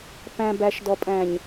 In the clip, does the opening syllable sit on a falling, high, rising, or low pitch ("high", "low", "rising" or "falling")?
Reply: low